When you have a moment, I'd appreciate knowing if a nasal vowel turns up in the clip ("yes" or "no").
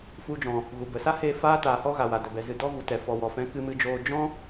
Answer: yes